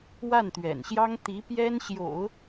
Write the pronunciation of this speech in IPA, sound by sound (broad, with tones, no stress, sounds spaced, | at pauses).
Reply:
w a˥˩ n t̪ ɥ ɛ̰˨˩ n ɕ j ɑ˥ ŋ t̪ i˧˥ p j ɛ˥ n ɕ j o̰˨˩˦ ʊ̯